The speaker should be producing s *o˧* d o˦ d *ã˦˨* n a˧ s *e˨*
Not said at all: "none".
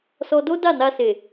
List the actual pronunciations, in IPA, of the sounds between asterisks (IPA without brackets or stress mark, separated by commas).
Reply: ɔ˧, a˦˨, e˨